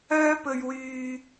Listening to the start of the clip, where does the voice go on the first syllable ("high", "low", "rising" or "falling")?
high